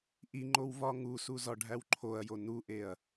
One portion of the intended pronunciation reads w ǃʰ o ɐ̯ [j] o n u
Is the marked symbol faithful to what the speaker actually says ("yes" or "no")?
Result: yes